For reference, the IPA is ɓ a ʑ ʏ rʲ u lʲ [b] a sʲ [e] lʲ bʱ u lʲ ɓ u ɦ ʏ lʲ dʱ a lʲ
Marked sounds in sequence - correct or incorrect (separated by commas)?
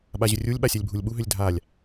incorrect, incorrect